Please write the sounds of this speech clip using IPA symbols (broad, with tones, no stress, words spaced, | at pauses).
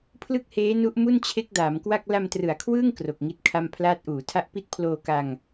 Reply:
pʰlɯ˥˩k̚heː˦˥nu˦˥ʔ mu˥˩nt͡ɕʰe˦˥k̚daː˩˦mkwa˥˩k̚ la˧mtrɯ˩˦a̯kʰwɯː˥˩ŋ kro˨˩k̚ŋi˦˥t̚kʰa˥˩m pʰlaː˦˥t̚ʔuː˩˦tʰa˥˩ʔ pi˦˥t̚pʰloː˧ka˧ŋ